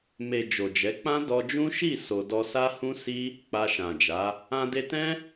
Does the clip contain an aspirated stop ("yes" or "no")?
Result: no